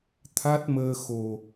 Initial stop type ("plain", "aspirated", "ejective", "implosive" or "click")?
aspirated